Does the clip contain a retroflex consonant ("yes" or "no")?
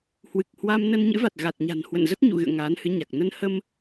no